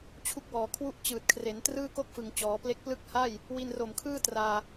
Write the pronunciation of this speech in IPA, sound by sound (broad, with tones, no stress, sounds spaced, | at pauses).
t͡ɕʰ u˥˩ k̚ w ɔː˨˩ kʰ w u˥˩ ʔ t͡ɕ ɯː˨˩ t̚ kʰ r e˩˦ n t r ɯː˥˩ k o˥˩ k̚ f ɯ˨˩ ŋ t͡ɕ ɔː˩˦ p l e˥˩ k̚ p l ɯ˦˥ k̚ h a˥˩ j | w i˧ n r o˨˩ m kʰ ɯː˥˩ t r aː˧